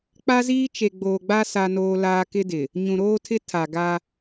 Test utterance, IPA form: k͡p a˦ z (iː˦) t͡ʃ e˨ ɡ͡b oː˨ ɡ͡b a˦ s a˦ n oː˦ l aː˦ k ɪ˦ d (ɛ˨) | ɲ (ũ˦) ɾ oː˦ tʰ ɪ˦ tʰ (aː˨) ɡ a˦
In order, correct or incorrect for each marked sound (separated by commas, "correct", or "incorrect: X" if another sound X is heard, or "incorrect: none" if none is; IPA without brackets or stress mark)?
correct, incorrect: ɪ˨, incorrect: ũ˨, incorrect: a˨